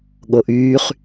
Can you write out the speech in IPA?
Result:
ɠ o ʔ yː χ

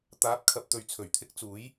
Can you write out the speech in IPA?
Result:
t̪ aː˨˥ p̚ kʰ ɐ˨ p̚ t̪ ɵ˨ ɥ t͡sʰ ɵ˨˩ ɥ t̪ʰ ɪ˥ k̚ t͡s uː˨˥ j

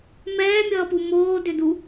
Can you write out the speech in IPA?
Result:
m ɛː mʲ ʌː p u m oː d ʏ d u

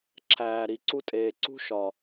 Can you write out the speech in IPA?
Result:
ǁʰ æː˨ ɾ i˨ ǀ u˦ tʼ eː˨ ǀ ṳ˦ ʃ ɒ˨

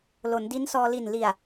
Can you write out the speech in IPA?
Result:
l o˩˦ n d i˦˥ n s ɔː˧ l i˨˩ n l i˨˩ a̯

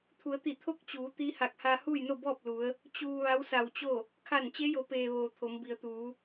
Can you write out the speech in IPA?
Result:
t̪ʰ u˩˧ ə̯ t̪ i˧˩ t̪ʰ o˥˨ k̚ t͡ɕ uː˩˧ t̪ i˧˥ h a˧˩ k̚ h aː˧ h uː˥˨ j n o˥˨ b ɔː˥˨ p̚ l u˩˧ ə̯ | t͡ɕ uː˧ ʋ a˧˥ w s a˧˩ w t͡ɕ o˥˨ | kʰ a˧˩ n t͡ɕ e˧˥ j o˩˧ p eː˩ ʋ oː˩ t̪ʰ o˩˧ m b i˩ ə̯ t̪ uː˩˧

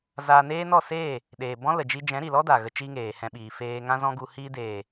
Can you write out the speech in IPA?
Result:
z aː˧ n eː˦ n ɔ˦˨ s eː˦˨ | ɗ eː˨ b ɔ̃˦ l ə˨ d͡ʒ i˧ d͡ʒ ɛ̃˨˦ ɾ i˨ l ɔ˦ d a˨ ɣ ə˧ t͡ʃ i˦ ŋ eː˨ h ɛ̃˧ ɓ iː˨ f eː˧ ŋ ã˦ z ɔ̃˦ ɡ u˧ h i˧ d eː˨

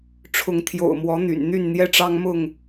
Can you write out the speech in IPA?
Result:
ʈ͡ʂʰ ʊ˨˦ ŋ t̪ʰ j o̰˨˩ ʊ̯ m w ɔ˨˦ n̪ y̰˨˩ n n̪ y˥˨ n n̪ j ɛ˦ ʈ͡ʂ ɑ˦ ŋ m ʊ˥˨ ŋ

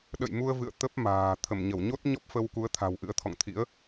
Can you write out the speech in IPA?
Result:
ɗ ə̰˧˨ j m u˧ ə̯ v ɨ̰˧˨ ə̯ t̪ ə˦˥ p̚ m a̤ː˨˩ t̪ʰ ə˧˩ m ɲ ə˧˩ w ɲ o˦˥ t̚ ɲ ɔ˦˥ p̚ f ə˧ w k u˨˦ ə̯ t̪ʰ a̤˨˩ w ʔ ɨ̰˧˥ ə̯ t̪ʰ ɔ̰˧˨ ŋ t̪ʰ ḭ˧˥ ə̯

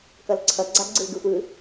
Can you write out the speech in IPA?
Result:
k ʌ l ǀʰ ʌ ɡ͡ǀ a ɡ͡ǀ ɯ l ɡ ɯ xʷ j ɯ

